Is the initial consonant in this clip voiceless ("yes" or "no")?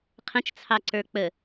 yes